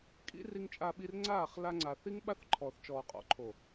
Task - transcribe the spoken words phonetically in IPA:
kʼ ḭ˦ r i˧ ŋ t͡ʃʼ a˧ ɓ i˧ r ŋ͡ǀ aː˦˨ χ l a˧ ŋ͡ǀ a˨ θ i˦ ŋ ɓ a˦ θ ǃʰ ɔː˨ θ t͡ʃ ɔː˨ qʼ ɔ̰˨ ǃʰ o˨

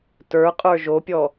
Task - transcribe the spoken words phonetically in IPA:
t ə˞ qʼ ə˞ ʒ o pʲ ɔ

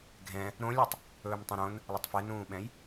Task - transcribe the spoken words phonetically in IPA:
ɡʱ ɛ̃ | ɾ õ lʲ ɔ tˤ | ɵː m tˤ ẽ ɾ õ n | lˠ ɛ tˤ f ɛ n ũː ɓ ɛ̃ j

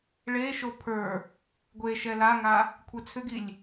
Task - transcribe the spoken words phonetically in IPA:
ɭ e ʃ o pʰ ə˞ | ɡʷ e ʃ ɛ l a ŋ a | kʷʰ ɛ t͡sʰ ʏ ɡ i lʲ

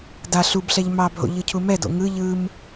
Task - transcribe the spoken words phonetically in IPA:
d a ɬ u b ɬ ɛ ʎ m ɑ bʱ o̰ ʎ ɯ cʰ u m ɛ d o̰ ŋ ɯ ʎ ɯ m

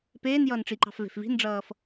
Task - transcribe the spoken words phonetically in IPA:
p eː n j ʌː n ʈ͡ʂ i ǃ ɑ̤ f v e̤ f v i̤ n ɖ͡ʐ ʌː f

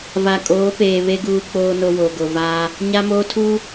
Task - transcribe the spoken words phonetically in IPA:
v a˨ kʼ oː˨˦ p eː˨ β e˦ ɡ uː˦ k͡p oː˦ n o˦ w o˨ ɡ o˨ v aː˦ | ɲ a˦ m oː˦ tʰ uː˦

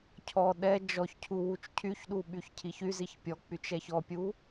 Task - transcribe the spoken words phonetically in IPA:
cʰ ɔ ɗ ɛ d͡ʒ ɔ ç cʰ u w u t͡ʃ cʰ y ç ɗ u ɓ y ç cʰ i ç y z i ç pʲ ɔ k͡p y t͡ʃ ɛ ç ɔ pʲ u

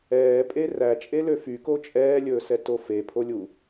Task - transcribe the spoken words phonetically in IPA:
ɛː pʼ e r æ t͡ʃʼ e l ø f y k o t͡ʃʼ ɛː lʲ ɵː s ɛ t o f e pʰ o lʲ u

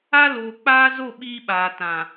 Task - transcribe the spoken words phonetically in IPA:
a˦ l oː˨ k͡p aː˦ z o˦˨ ɓ iː˦ ɓ aː˨ t ã˨

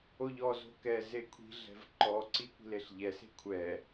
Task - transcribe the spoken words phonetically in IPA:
o ʎ ɔ z o̤ k ɛ z e kʷʰ i̤ ɮ ɛ̤ v ǃ ɔ ǀ i kʷ i̤ l e ɬ ʎ ɛ s e̤ kʷʰ ɛ

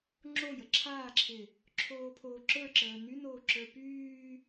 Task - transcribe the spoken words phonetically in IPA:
ŋ͡ǁ o j ə ǁʰ aː ǁʰ ɪ | ǁʰ oː pʰ o ǁ ə˞ ǁ əː n y n oː ǁ ə˞ p yː

